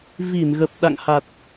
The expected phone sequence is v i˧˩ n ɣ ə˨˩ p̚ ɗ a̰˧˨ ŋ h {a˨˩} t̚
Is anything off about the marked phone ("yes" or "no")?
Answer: no